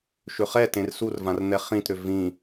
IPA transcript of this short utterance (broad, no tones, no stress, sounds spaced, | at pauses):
ʃ ʏ χ ɛ t ẽ r s u r v ã r n̪ ɛ χ ĩ t ɾ ʏ v ĩ